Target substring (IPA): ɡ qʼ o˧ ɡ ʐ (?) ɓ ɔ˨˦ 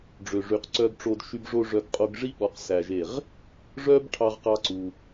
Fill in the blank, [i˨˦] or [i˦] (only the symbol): i˦